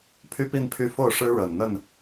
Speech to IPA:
pʰ y˦ p i˥˨ n pʰ y˥˨ f o˥˨ ʊ̯ ʂ ɻ̩˦ ɻ ə˨˩ n n̪ ə˥˨ n

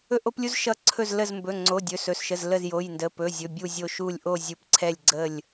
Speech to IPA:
ɵ˧ ʔ o˧ p lʲ u˧ z ʃ ʌ˧˩ ǀʰ ɵ˧˩ z l ə˧˩ z m b ɵ˩˧˩ ŋ͡ǀ o˩˧˩ dʲ ɵ˩˧˩ s ɵ˩˧˩ s ʃ ə˩˧˩ z l ə˧˩ z j o˩˧˩ j n d ə˩˧˩ p ɵ˩˧˩ zʲ ɵ˩˧˩ bʲ u˧˩ zʲ o˧˩ ʃ u˧˩ lʲ ʔ o˧˩ zʲ u˩˧˩ p ǀʰ ɛ˧˩ lʲ ɡ͡ǀ ə˧˩ lʲ

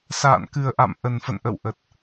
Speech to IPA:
s a̰ː˧˨ n k ɨ˨˩ ə̯ ʔ a̰˧˨ m ʔ ə˨˩ n f ə̰˧˨ n ʔ ə̰˧˨ w ʔ ə˨˩ t̚

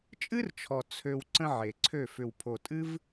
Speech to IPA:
t͡ʃʼ ɨ˦ r t͡ʃʰ ɔ˨ t͡sʰ ø˧ w ǀ ə̃˦ ʕ e˨ ǀʰ ø˦˨ f ʏ˨ w pʰ o˨ tʼ ɨ˦ v

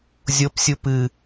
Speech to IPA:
zʲ o p sʲ u p ɨ

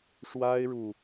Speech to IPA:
ʂ w a˥ ɪ̯ ɻ u˨

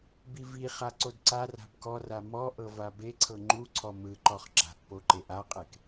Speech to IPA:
b i v i χ a ǀ o d ǀ a r a̤ b k ɔ r a m ɔ ʔ ɤ v a b e ǀʰ ɤ ŋ͡ǃ u ǀʰ ɔ m ɯ ǃ ɔ χ ǁ a̤ ʔ p o ǃ e ʔ a qʼ e k

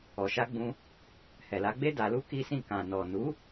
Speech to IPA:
ɔ˨ ʃ a˧ ɡ͡b ũ˧ | h ɛ˨ l a˨˦ ɡ͡b e˦ d a˧ l u˦ k i˦ s ĩ˦˨ k ã˨ n ɔ˨ n u˨˦

